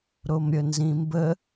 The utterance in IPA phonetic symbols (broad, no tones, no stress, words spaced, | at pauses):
ɾomɾʲənzĩmbə